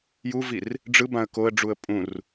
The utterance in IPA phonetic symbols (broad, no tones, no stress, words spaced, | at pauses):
juvir | ɖ͡ʐɯbãə̯ koə̯ɖ͡ʐuə̯ pʼũr